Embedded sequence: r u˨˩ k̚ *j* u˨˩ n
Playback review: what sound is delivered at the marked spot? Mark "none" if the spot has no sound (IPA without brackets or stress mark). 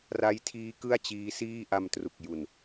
j